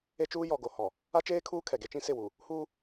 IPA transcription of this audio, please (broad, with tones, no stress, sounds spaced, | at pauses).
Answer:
e˦ t͡ʃ uː˦ j ɔ˨ ɡ o˨ h ɔ˨ | a˦ t͡ʃ eː˦ kʰ uː˦ kʰ ɛ˨ ɡ e˦ t͡ʃ ĩ˦ s ɪ˦˨ w u˨ | h uː˦